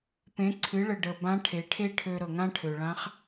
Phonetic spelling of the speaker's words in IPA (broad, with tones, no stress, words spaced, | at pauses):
pẽ˩˧ǀʰɨ˩˧ɭə˩ ɖə˩bã˧˥ ʈʰe˩˧ʈʰe˥ʈʰø˧ ɾɤ˩ŋã˥ʈʰø˩ɭã˧˥χ